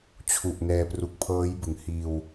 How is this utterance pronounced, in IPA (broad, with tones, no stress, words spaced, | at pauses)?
t͡ɕʰu˨˩ʔnɛː˧ pru˨˩k̚pʰɤː˦˥jbɯ˩˦ŋhiː˧w